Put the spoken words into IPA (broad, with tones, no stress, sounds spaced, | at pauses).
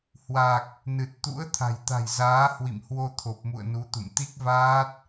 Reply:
h w a˨˩ k̚ | n ɨ˨˩ t̚ t̪ ṵ˧˥ ə̯ t̪ʰ a̤˨˩ j t̪ a̤˨˩ j z aː˨˦ h w ḭ˧˨ m h w o˧ t̪ʰ o˨˩ p̚ m ṵ˧˨ ə̯ n u˨˦ t̪ ṵ˧˨ m t̪ i˦˥ k̚ v aː˦˥ t̚